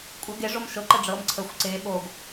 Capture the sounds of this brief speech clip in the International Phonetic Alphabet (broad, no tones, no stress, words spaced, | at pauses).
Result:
kʷʼɤ ɡe ʐomʃɤ ǃəɖ͡ʐɤm ǀʰəxʷ ǀe ɓoɡ